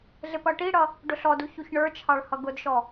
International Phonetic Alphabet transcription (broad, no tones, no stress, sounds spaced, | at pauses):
ɮ ɪ p ʌ ʈ i ɽ ʌ | ɖ ʊ ɬ ɔ d u ç u ç ɳ ə˞ t͡ʃʰ ɑ ɭ h ʌ ɡ ʊ d ʃ ɔ